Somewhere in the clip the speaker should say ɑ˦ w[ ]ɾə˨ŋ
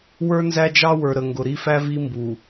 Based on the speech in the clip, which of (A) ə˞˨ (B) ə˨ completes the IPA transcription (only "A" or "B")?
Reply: A